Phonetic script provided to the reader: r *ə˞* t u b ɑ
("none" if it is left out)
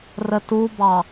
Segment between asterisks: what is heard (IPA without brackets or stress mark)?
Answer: ə